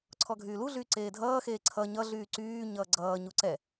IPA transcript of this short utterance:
ǀʰɔɡʱyːluɮyː ǀeːdʱʌːxeː ǀʰʌ ɲʌɮyː ǀyː ɲʌːɡ͡ǀʌːɲu ǀɛ

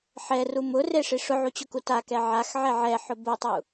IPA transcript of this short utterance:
ħɛru mʊreʂi ʂʊʕut͡ɕʊku takɛ ʕaxʕɛ ʕɛħʊ bʊtˤu

